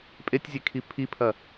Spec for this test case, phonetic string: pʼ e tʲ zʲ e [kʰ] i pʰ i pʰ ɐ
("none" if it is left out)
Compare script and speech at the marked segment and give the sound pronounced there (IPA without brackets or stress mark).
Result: kʰ